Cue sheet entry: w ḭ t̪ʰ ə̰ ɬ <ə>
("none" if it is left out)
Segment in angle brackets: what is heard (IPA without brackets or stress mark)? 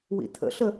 ə